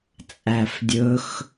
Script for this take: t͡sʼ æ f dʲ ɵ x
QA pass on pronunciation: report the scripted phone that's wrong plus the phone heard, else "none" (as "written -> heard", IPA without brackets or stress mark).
none